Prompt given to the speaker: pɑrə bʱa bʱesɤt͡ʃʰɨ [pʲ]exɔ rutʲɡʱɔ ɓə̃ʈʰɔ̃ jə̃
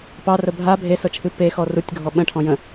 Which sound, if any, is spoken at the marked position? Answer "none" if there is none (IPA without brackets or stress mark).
p